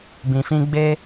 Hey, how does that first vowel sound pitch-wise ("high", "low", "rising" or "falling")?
low